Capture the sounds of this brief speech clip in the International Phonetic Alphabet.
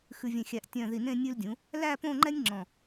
xʉ˧vʲẽ˧˩xʲæ˧˩ʔ tʲœ̃˧˩ ði˧˩nẽ˥˧ nʲʉ˧ldʲũ˩˧ | læ˥˧põ˥˧ŋ͡ǃɛ˥nʲ ŋ͡ǁɔ̃˧˩

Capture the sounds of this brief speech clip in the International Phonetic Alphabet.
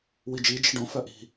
wid͡ʒi d͡ʒi̤ɖõfœ ʔi̤

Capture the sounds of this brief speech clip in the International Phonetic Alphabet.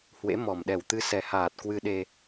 hwḛ˧˥ mɔ˨˩mɗɛ˨˩w t̪ɨ˨˦sɛ˨˩haː˨˩t̚ kwɨ˧ɗe˧

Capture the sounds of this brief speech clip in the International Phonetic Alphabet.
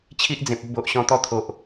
t͡ɕʰi˦ʔd͡zẽ˨p̚ u˧bo˨ʔɕɔ̃˧t̪ɔ˥˧ t̪ʰo˨ʔ

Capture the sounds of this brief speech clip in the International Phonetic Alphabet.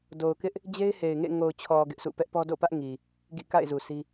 do˨ʊ̯kɪ˦ʔ | d͡ʑe˦ɪ̯he˨ɪ̯ŋḛ˦˨ ŋo˨ʊ̯t͡ɕʰɔ˨ ɡɪ˦ʔsʰṵ˦˨ pɛ˦ʔpɔ˦do̰˦˨ pä˦ʔ ŋi˨ | ɡḭ˦˨ ka̰˦˨ɪ̯ zu˨si˦

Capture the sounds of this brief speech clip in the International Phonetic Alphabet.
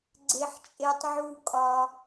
ɡ͡ǀe˧ħt͡ʃʼe˧tˤʕu˧kʼɒ˧

